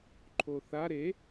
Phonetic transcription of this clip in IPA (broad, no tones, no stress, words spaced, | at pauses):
ǃʰoθa ɾe